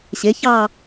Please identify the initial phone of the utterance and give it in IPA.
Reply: ɕ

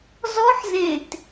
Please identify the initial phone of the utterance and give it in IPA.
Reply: z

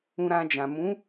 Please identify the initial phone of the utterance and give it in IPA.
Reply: ũ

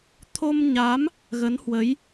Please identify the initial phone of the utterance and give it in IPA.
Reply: t̪ʰ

